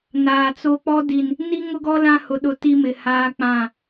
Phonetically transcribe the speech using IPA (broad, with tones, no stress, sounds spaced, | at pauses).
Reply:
n aː˨ t͡s o˦ k͡p ɔ˦ d i˨ n | n i˦ ŋ ʊ˦ ɡ ɔ˦ l ã˦ h ʊ˨ ɗ ʊ˨ t i˦ m ɪ˨ h aː˦ k͡p ã˦˨